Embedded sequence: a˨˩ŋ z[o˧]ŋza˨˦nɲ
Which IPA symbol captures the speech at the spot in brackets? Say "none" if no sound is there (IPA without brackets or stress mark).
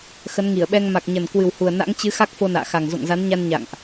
o̰˧˨